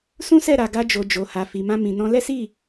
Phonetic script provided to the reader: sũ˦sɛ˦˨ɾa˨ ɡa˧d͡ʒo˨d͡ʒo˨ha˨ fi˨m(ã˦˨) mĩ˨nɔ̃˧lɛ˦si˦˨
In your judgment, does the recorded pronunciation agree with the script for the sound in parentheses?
no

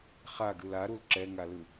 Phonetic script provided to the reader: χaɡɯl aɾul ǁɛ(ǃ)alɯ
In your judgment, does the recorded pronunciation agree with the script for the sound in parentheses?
no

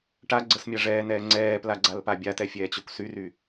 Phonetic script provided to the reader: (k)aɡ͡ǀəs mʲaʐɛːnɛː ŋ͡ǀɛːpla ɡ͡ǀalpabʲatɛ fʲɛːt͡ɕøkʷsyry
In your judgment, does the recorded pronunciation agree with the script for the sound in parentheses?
no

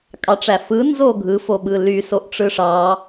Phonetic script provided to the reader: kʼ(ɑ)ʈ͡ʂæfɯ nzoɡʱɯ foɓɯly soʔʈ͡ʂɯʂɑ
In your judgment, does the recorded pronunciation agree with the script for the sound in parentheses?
yes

